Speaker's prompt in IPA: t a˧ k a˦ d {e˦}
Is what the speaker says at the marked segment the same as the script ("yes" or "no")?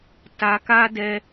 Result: no